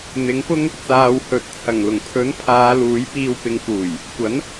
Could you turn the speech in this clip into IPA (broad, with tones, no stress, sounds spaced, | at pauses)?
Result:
n̪ ɪ˨˥ ŋ p ʊ˥ ŋ | t͡s aː˨ w h ɵ˨ t̚ t͡sʰ ɐ˨˩ ŋ l ʊ˨˩ ŋ pʰ ɵ˨˥ n pʰ aː˨˧ l uː˨˥ j p iː˧ w p ɪ˨˧ ŋ f uː˨˩ j | kʷ ɐ˨˥ n